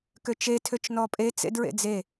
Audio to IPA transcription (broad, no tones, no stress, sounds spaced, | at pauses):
k ø t͡ʃ e tʰ ø t͡ʃ n ɔ pʼ e t͡s ḛ d ɹ ḛ d͡z e